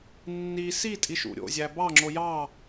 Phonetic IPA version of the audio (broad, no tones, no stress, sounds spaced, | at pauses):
nː i s i tʼ i ʃ ṵ ɾʲ o̰ zʲ æ b ɑ ŋ͡ǁ o j ɑ